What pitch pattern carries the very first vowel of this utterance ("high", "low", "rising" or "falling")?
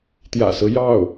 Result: low